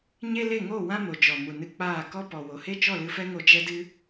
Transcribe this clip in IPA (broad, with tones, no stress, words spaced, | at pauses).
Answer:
ɲe˦le˦˨ŋo˦˨wã˦ mo˨d͡ʒɔ˨ mu˨nɨ˧k͡paː˦˨ kɔ˧ pɔ˨wo˨ he˦t͡ʃɔ˦˨lɨ˧fɛ˦ ŋo˧ d͡ʒɛ˦dɨ˦